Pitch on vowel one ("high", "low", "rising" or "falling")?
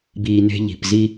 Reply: low